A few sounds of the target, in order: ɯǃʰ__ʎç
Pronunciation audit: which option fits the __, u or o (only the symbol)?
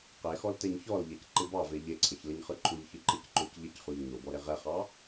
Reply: u